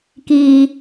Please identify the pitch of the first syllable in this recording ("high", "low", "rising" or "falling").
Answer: high